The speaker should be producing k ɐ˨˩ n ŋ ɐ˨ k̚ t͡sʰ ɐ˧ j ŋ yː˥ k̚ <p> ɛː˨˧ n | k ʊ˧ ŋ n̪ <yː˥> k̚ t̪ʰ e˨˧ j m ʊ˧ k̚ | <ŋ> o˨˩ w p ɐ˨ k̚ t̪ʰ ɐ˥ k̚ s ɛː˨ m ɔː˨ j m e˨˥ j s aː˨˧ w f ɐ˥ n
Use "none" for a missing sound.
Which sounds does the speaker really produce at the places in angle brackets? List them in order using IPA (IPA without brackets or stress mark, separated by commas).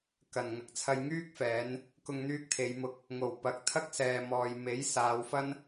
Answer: f, yː˧, ŋ